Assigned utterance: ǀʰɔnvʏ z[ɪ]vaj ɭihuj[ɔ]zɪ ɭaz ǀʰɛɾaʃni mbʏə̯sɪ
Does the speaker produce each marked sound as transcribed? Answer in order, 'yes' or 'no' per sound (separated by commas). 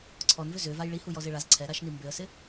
no, yes